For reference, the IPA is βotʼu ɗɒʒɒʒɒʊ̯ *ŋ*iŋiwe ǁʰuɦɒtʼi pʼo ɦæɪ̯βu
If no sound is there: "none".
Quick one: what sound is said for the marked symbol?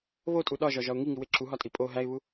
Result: ŋ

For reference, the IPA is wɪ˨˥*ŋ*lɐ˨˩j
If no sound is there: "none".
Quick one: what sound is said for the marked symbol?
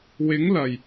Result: ŋ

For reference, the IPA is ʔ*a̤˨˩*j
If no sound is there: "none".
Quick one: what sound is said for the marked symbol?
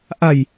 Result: a̤˨˩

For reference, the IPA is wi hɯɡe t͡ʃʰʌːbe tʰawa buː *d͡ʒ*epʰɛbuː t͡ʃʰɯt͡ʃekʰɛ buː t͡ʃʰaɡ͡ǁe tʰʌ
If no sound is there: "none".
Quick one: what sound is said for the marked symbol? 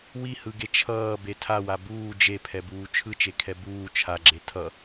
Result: d͡ʒ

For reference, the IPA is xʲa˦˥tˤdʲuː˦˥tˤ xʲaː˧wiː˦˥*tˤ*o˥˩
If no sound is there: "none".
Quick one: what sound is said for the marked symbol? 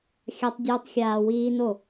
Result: n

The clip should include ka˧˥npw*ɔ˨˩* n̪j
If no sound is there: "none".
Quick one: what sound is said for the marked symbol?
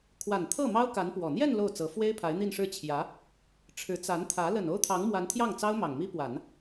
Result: ɔ˨˩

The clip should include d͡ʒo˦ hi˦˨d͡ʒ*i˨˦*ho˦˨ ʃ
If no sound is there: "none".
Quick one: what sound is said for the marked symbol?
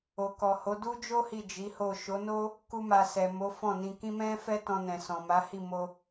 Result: i˨˦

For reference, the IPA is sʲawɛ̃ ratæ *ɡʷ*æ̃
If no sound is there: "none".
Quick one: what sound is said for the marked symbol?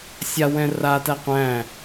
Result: qʷ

